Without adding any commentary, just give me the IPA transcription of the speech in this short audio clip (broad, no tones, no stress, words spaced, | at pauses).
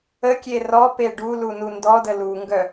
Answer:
əkʲe rɔpe ɖu lunundɔdə luŋɡœ